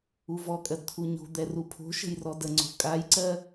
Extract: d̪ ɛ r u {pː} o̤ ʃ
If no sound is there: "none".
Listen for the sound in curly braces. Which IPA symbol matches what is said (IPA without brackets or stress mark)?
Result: pʰ